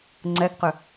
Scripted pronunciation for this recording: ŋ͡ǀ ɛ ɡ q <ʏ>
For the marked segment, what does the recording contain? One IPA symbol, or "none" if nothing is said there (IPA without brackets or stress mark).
ʏ